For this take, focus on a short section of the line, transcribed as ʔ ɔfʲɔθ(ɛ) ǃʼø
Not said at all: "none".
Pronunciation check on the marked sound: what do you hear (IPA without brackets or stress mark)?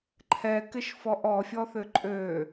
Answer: ʏ